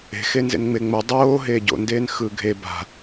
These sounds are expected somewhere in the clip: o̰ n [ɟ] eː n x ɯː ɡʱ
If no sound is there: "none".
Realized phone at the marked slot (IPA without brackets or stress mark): d